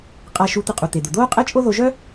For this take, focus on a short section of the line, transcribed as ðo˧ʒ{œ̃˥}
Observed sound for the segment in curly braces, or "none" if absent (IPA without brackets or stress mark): œ˥